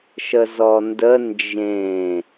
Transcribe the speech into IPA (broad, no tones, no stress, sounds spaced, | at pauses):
ʃ ə z ɔ n d ə n d͡ʒ ẽ